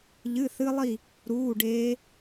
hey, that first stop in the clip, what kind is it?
plain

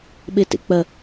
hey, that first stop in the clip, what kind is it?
implosive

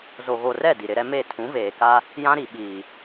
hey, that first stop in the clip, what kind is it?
plain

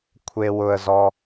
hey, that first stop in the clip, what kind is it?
aspirated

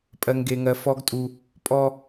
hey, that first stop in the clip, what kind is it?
ejective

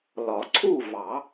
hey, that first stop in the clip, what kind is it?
click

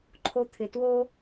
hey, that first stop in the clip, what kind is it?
click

